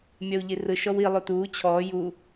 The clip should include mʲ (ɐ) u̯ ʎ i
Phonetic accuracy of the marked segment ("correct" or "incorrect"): correct